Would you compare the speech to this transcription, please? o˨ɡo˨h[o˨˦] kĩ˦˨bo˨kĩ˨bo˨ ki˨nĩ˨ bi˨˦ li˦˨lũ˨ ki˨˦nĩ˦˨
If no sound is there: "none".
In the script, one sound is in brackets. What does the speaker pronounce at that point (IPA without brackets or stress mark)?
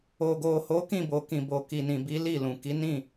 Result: o˨˦